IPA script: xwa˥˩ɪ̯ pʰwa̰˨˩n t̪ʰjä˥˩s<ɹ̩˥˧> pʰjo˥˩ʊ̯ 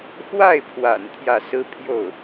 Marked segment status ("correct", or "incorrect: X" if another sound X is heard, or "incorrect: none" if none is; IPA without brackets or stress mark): incorrect: ɹ̩˥